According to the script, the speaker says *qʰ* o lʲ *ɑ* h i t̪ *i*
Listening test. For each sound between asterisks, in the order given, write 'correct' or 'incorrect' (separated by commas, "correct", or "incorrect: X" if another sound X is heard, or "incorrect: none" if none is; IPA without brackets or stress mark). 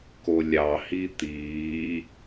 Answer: incorrect: k, correct, incorrect: iː